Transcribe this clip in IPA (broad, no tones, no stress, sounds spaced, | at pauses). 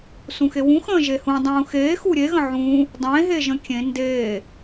s ũ x e w ũ x ə̃ː ʒ e h ũ dˤ ũː x eː x u ɾʲ e ɣ ə̃ ʕ ũː | dˤ ẽ ɦ e ʒ ə̃ kʲ ẽ n d eː